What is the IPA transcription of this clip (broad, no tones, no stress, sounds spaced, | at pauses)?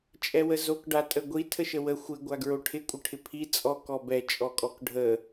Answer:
t͡ʃʼ ɛ w ə z o k ɖ a tʼ ə ɡʷ i tʰ ə ʃ ə w ə xʷ ɪ ɡʷ a ɡ ɹ o ʈʰ ɪ kʷʼ ə ʈʰ ɪ pʰ i t͡sʼ ɔ k ɔ b ɛ t͡ʃʼ ɔ kʼ ɔ k ɖʱ ə